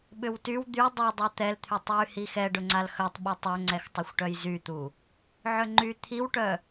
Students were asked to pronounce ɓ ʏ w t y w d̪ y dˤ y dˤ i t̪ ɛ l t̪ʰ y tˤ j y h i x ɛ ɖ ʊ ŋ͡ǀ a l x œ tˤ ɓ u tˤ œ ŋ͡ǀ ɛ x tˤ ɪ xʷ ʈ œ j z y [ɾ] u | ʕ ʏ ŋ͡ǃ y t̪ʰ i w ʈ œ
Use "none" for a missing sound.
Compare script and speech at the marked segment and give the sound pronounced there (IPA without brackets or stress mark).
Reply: t̪